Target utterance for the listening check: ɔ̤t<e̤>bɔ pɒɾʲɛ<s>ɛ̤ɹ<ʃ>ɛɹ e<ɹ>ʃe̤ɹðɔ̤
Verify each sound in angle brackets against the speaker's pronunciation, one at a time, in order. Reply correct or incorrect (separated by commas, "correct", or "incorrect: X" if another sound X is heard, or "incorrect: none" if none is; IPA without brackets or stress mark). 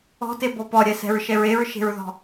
incorrect: e, correct, correct, correct